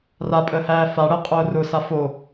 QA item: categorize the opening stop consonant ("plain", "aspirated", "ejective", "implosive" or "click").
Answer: ejective